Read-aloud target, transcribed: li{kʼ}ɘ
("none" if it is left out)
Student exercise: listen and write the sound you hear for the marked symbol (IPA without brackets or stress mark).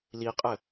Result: qʼ